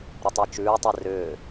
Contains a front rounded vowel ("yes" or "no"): yes